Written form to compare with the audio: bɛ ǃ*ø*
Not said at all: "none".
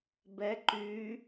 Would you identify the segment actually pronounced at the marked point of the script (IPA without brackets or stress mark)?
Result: y